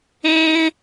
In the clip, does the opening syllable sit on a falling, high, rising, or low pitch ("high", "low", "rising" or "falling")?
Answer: high